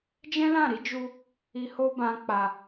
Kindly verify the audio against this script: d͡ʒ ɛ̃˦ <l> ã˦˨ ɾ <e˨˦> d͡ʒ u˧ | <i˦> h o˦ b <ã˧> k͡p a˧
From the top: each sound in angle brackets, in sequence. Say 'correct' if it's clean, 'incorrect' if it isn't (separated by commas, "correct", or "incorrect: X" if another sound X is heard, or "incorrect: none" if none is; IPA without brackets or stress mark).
correct, incorrect: i˨˦, incorrect: i˧, incorrect: ã˦